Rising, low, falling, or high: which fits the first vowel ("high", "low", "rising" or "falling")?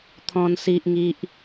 low